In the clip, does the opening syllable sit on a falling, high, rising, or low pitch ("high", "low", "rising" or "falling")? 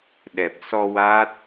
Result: low